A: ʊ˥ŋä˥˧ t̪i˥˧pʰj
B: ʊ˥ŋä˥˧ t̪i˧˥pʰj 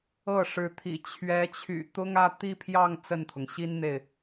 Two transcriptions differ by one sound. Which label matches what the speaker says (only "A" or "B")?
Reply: A